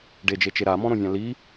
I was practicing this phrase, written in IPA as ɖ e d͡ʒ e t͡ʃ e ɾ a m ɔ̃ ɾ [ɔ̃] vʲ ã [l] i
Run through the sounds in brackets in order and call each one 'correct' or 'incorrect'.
incorrect, correct

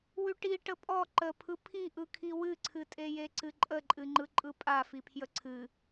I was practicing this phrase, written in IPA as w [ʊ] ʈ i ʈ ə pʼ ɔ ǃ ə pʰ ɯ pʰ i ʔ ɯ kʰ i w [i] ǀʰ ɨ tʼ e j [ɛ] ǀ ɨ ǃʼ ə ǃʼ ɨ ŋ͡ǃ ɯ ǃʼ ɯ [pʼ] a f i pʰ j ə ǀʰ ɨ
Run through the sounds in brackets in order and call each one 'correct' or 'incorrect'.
incorrect, incorrect, incorrect, correct

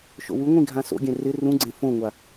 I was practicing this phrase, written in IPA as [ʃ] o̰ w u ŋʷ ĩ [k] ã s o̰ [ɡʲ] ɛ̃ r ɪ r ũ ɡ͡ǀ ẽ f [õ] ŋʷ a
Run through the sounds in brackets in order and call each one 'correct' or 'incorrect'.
correct, incorrect, correct, correct

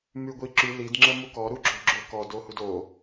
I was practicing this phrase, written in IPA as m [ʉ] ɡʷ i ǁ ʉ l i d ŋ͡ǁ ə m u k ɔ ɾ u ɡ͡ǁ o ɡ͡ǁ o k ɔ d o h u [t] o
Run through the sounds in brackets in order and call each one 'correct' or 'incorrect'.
correct, incorrect

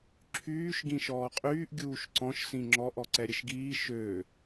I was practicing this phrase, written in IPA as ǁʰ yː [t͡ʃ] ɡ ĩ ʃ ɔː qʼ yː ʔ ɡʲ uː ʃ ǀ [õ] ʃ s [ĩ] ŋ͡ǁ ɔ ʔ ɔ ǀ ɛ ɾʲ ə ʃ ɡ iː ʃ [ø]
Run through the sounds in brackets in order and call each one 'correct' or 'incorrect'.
incorrect, incorrect, correct, correct

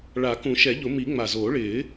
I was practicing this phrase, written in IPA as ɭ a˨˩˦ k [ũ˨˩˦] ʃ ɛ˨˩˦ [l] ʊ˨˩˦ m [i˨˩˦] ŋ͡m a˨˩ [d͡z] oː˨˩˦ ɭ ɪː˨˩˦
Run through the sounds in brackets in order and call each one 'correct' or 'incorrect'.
correct, incorrect, correct, incorrect

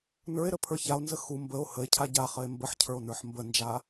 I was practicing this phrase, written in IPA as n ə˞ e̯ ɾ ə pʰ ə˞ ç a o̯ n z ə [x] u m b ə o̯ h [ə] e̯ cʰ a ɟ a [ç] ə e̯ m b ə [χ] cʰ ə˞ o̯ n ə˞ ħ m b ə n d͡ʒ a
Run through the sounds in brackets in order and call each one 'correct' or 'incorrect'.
correct, correct, incorrect, incorrect

